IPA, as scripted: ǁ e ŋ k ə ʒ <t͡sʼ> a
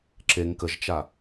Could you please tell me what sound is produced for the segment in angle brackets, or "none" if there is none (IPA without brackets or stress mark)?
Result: t͡ʃ